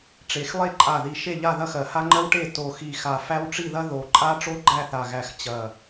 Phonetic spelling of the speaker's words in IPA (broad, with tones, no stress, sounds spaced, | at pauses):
ʈ͡ʂ e˨˩ x lˠ e˦˨ ǃʼ a˨˩ ð i˨˩ ʃ e˦˨ ʎ a˦˨ ð ɐ˦ x ɜ˨˩ h a˦ ŋ͡ǃ ɜ˦ w ʈ e˦˨ t o˨˩ x i˨˩ x a˨˩ f æ˦ w ʈ͡ʂ i˦˨ ð ɐ˦ ð o˨˩ ǃʼ a˦ ʈ͡ʂ o˦ ɡ͡ǃ æ˦˨ θ a˨˩ ɣ æ˨˩ x t͡ɕ ɐ˨˩